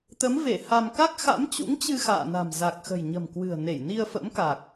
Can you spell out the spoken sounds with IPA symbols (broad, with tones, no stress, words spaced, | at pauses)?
t̪ə˨˦mve˧˩ ha˧m ka˦˥k̚xa̰˧˥mt͡ɕṵ˧˥ŋt͡ɕɨ˧ xa̰ː˧˨na̤˨˩m za˨˩k̚xə̤˨˩jɲə̤˨˩mkwɨ̤˨˩ə̯ ne˧˩jni˧ə̯ fə̰˧˥mka˨˩k̚